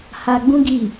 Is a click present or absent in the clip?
absent